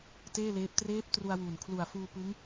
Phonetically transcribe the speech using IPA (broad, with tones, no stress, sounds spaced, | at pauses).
t eː˥˩ l eː˦˥ p̚ t r eː˦˥ p̚ t r u˧ a̯ w uː˨˩ n kʰ l u˨˩ a̯ f uː˧ p ɯ˦˥ ŋ